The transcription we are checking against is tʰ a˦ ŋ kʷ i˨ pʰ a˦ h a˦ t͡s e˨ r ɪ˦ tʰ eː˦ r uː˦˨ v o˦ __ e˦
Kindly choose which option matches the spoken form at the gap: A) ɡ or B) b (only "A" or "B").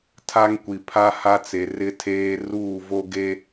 A